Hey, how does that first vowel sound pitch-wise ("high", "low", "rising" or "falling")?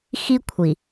high